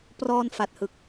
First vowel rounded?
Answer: yes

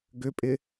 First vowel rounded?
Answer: yes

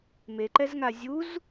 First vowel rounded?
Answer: no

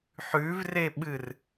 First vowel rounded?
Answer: yes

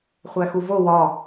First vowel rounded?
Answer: no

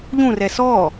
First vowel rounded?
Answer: yes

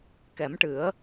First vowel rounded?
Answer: no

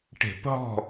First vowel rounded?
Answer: no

